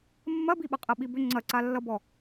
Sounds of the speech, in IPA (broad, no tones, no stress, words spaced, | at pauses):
mːɐbiɓɐqʼɐ ɓibʏ ŋ͡ǀɐǀalːʌbɔ